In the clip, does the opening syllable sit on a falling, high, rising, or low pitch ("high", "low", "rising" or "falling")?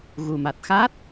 low